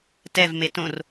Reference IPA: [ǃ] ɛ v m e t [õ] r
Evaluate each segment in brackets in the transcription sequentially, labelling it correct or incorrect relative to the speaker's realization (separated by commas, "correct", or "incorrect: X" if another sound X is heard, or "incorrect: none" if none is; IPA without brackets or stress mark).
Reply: incorrect: t, correct